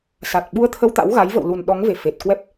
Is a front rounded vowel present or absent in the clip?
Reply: absent